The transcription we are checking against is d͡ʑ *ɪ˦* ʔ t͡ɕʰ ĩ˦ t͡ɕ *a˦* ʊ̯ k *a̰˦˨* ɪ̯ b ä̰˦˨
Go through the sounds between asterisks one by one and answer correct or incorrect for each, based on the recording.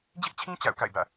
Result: correct, incorrect: a̰˦˨, correct

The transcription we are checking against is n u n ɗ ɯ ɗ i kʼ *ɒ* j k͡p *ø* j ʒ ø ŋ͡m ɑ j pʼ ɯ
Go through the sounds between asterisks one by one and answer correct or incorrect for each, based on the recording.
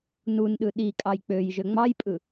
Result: incorrect: ɑ, correct

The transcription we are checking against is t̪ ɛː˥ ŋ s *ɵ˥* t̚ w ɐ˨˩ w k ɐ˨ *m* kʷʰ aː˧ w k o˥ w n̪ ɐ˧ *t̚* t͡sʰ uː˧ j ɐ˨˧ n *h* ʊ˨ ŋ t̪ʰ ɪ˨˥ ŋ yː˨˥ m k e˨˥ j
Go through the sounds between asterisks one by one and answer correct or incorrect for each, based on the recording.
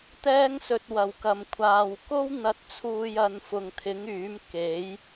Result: incorrect: ɵ˨, correct, correct, incorrect: f

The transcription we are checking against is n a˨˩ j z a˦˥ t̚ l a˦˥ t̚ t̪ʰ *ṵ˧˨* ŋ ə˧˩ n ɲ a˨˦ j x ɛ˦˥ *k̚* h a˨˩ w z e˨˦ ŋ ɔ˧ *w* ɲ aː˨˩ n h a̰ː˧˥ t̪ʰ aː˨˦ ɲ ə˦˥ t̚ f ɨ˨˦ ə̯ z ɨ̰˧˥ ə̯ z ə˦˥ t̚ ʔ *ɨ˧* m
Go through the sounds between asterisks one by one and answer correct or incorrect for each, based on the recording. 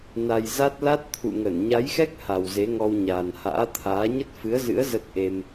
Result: correct, correct, correct, incorrect: e˧

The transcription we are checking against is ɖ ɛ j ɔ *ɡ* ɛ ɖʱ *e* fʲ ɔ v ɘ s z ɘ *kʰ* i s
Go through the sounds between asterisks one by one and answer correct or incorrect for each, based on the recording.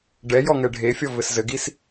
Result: incorrect: ŋ, correct, incorrect: ɡ

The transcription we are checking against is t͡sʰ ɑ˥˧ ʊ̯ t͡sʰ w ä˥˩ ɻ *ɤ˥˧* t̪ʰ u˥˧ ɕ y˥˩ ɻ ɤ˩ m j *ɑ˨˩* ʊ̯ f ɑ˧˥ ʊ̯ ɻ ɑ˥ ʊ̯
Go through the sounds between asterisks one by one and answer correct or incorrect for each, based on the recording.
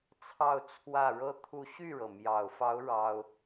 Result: incorrect: ɤ˥, correct

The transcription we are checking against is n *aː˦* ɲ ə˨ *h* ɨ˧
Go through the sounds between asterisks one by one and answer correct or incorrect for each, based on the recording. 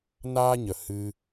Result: correct, correct

